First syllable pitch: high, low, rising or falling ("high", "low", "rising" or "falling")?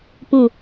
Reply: low